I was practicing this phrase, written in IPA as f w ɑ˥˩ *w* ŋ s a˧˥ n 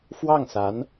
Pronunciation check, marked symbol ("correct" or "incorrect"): incorrect